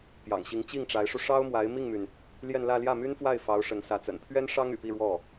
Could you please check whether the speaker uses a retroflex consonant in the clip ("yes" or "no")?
yes